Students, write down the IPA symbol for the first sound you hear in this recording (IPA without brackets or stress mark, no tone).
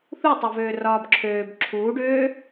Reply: θ